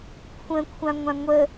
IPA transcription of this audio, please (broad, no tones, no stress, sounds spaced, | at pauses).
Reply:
kʷʰ ə̃ kʷʰ ã ŋʷ ã ŋʷ ə